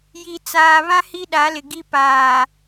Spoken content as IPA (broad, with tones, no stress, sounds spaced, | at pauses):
j i˨ t͡s aː˨ β ã˦ h i˦ ɗ a˨˦ l ɪ˨ ɡ i˦ p aː˨